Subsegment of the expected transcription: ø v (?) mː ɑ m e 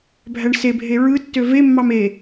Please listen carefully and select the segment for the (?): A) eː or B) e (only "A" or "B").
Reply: B